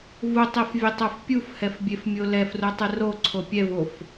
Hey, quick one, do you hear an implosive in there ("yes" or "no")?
no